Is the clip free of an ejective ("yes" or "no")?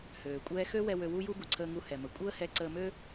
no